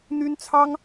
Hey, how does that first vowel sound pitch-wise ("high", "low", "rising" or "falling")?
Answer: high